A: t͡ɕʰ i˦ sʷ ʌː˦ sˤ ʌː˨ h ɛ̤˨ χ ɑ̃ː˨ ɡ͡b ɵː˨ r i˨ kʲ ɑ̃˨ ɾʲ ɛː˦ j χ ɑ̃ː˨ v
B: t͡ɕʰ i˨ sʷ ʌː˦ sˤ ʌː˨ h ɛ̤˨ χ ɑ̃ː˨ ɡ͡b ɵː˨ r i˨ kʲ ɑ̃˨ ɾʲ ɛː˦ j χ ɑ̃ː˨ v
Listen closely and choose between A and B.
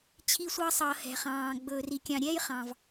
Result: A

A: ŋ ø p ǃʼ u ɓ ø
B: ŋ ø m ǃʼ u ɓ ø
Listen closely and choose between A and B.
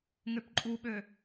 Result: A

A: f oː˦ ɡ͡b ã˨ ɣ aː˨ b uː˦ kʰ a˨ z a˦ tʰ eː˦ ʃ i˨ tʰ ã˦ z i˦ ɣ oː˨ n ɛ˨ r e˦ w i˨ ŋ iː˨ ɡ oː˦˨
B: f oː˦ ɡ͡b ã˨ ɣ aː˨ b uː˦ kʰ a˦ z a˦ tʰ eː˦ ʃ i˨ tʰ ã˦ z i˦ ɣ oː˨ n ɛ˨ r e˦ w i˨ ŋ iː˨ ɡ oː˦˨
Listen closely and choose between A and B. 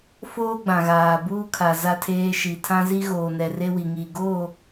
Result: A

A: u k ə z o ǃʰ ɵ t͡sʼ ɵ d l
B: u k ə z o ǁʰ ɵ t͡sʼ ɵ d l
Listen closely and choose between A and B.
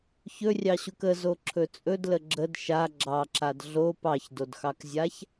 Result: B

